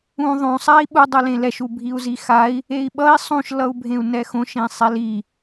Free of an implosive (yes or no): no